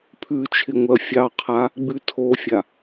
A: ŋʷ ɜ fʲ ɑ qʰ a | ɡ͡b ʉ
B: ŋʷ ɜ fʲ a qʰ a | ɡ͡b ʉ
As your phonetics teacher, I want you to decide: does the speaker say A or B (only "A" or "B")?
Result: A